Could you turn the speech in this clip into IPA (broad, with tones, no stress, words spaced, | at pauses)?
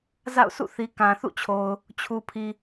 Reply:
za̰˦˨ʊ̯ sʰṵ˦˨θi˨ kã˨θṵ˦˨t͡ɕʰo˨ʊ̯ | t͡ɕʰu˨pʰi˨